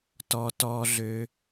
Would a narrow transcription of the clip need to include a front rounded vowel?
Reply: yes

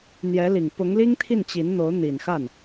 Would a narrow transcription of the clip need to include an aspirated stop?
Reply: yes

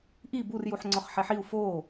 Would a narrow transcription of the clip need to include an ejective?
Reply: no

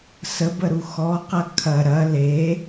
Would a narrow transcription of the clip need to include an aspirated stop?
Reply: yes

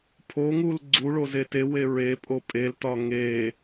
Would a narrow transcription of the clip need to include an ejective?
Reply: yes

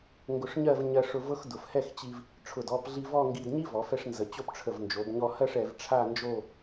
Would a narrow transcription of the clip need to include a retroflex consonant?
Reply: yes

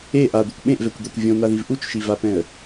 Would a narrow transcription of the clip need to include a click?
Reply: no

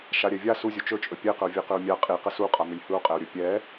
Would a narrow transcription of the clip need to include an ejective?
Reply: yes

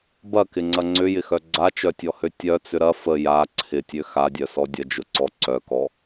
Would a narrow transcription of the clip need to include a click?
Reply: yes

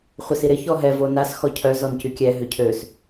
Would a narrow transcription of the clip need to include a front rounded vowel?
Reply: yes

